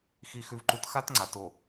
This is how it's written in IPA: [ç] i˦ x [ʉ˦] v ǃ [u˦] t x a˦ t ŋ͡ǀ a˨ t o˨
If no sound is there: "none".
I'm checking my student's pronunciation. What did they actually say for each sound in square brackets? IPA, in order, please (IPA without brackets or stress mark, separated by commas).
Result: x, ʉ˦, u˦